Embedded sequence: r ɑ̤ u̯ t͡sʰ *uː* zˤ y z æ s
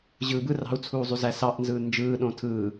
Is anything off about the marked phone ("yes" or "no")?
no